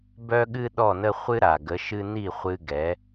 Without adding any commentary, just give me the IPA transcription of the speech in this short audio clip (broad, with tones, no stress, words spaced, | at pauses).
bœ˦ɠɨ˦ ɗɔ˦˨nə˦ χʷɨ˦ɾa˨ɡə˨˦ʃɨ˦ ni˦˨χʷɨ˧ɡɛ˨˦